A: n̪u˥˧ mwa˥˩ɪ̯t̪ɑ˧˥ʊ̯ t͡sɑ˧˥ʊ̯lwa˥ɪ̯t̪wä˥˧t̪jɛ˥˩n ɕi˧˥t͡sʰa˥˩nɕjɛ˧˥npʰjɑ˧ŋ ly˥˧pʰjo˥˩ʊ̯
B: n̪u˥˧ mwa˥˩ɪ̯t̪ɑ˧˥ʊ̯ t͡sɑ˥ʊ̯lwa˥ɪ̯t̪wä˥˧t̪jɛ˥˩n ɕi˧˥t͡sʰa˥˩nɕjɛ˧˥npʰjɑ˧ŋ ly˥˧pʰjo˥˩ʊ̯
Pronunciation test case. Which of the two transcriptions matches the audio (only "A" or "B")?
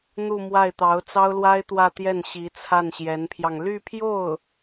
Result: B